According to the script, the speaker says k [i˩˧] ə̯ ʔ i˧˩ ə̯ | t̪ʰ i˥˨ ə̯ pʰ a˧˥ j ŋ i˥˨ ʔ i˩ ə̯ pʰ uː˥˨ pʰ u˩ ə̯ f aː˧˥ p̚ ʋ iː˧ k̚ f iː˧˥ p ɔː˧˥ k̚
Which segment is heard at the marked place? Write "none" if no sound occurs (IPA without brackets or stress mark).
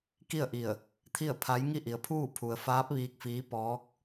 i˥˨